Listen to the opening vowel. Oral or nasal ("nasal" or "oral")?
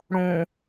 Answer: nasal